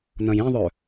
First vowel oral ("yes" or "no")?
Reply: no